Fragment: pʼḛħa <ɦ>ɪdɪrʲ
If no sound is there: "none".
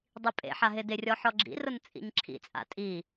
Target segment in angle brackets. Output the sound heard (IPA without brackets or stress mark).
ɦ